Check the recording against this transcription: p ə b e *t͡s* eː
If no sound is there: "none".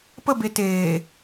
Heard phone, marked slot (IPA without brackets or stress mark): t